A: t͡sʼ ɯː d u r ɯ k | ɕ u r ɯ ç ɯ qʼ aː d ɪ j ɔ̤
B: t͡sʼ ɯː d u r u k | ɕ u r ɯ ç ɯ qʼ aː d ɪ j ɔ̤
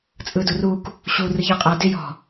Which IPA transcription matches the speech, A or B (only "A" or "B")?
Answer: B